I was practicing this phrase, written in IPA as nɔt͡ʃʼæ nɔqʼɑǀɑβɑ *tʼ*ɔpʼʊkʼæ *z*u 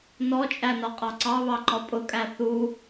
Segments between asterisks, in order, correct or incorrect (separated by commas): incorrect, incorrect